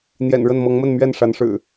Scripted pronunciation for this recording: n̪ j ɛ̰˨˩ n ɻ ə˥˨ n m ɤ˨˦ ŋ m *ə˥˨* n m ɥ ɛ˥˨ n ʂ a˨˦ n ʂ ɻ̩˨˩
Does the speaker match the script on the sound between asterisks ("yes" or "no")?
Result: yes